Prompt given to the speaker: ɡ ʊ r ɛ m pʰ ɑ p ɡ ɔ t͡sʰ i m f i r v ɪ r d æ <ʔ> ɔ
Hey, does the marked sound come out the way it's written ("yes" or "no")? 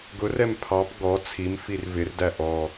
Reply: yes